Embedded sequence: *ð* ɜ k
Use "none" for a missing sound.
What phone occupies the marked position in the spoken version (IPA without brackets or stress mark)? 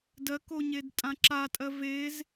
d